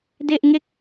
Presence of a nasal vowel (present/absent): absent